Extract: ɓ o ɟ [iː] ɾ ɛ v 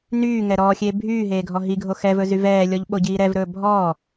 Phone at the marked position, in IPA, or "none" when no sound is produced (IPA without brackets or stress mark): iː